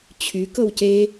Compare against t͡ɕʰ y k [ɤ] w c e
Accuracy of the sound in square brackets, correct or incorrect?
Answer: correct